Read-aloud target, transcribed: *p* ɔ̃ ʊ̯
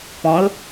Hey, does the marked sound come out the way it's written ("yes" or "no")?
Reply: yes